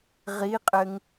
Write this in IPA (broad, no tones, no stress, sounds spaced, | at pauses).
ʁ i qʼ ɘ ŋ